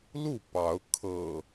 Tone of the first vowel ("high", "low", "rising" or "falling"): falling